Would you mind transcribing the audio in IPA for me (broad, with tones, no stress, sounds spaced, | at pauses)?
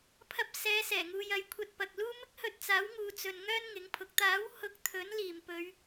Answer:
pʰ ɐ˧ p̚ s ɛː˨˧ s ɛː˨˩ ŋ uː˨ j ɐ˨˧ j kʷʰ ɐ˧ t̚ p ɐ˨ k̚ l uː˥ m ɪ˥ k̚ h ɵ˧ t̚ t͡s aː˨˥ w ŋ uː˨˧ t͡s ɵ˨ n ŋ œː˥ n ŋ ɪ˨˥ ŋ pʰ ʊ˨˥ k̚ t̪ aː˨˥ w h ʊ˨˥ k̚ t̪ʰ ɵ˨˥ n l iː˨˩ m p ɵ˨˧ ɥ